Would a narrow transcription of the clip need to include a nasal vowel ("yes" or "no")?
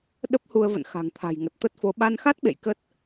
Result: no